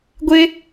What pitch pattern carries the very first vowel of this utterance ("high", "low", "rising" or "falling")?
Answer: high